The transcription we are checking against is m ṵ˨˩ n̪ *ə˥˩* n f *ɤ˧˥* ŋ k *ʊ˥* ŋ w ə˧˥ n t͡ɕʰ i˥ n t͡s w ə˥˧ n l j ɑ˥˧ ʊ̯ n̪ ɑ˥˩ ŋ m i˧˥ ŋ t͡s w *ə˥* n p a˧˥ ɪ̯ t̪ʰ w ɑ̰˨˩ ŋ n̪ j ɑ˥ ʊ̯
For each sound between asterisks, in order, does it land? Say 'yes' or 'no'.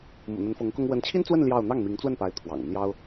no, yes, yes, no

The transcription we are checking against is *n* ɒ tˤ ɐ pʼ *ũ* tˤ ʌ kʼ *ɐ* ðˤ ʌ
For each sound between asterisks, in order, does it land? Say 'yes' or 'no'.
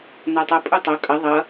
yes, no, yes

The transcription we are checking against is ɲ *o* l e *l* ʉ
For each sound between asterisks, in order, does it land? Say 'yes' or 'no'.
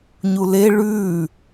no, no

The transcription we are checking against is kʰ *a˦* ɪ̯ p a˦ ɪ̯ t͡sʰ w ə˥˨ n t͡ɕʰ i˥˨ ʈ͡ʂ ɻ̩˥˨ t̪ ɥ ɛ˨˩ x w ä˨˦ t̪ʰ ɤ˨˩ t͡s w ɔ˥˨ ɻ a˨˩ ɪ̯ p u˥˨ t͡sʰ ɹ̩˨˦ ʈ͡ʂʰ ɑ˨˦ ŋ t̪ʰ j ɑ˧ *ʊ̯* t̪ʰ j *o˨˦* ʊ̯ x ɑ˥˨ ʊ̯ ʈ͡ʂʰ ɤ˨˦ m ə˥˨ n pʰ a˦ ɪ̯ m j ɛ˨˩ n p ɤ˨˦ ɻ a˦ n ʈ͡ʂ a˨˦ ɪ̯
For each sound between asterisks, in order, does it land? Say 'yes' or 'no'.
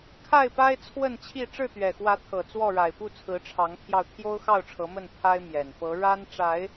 no, yes, no

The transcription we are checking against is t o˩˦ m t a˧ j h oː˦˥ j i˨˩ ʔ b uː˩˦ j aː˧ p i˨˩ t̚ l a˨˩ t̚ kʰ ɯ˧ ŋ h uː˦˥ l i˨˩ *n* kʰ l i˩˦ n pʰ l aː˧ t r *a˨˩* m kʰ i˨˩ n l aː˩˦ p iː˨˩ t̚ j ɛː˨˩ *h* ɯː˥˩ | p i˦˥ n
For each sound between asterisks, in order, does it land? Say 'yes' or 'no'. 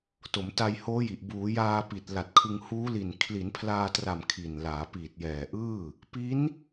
yes, yes, no

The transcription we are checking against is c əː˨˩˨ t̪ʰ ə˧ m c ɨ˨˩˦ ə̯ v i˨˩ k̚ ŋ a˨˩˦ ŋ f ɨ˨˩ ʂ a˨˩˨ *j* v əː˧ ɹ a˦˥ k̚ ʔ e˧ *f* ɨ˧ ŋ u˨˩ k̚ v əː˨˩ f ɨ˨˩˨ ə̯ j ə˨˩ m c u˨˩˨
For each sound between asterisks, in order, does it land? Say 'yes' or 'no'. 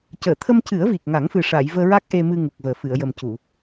yes, no

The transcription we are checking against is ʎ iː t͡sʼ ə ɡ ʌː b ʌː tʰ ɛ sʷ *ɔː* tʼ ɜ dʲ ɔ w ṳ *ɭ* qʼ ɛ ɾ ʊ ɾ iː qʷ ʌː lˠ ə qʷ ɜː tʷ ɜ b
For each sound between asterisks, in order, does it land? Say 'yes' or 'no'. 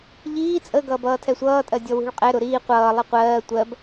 no, yes

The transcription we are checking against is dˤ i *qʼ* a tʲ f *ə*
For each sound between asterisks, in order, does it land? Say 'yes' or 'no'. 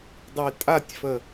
no, yes

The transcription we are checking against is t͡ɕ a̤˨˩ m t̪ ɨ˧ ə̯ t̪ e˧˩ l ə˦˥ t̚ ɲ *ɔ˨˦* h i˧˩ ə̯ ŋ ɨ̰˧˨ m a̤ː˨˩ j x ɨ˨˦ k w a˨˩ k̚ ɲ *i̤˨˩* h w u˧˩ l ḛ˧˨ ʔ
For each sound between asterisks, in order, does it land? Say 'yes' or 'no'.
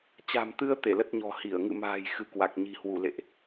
no, yes

